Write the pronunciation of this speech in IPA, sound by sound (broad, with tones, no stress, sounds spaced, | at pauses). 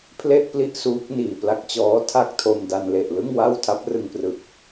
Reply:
pʰ l e˥˩ ʔ p l i˥˩ ʔ s uː˦˥ k̚ n iː˨˩ p l a˦˥ k̚ t͡ɕ ɔː˦˥ tʰ a˥˩ k̚ tʰ o˧ m d a˧ n l e˨˩ ʔ l ɯ˥˩ ŋ w a˥˩ w tʰ a˦˥ p̚ r ɯ˧ ŋ p r ɯ˨˩ k̚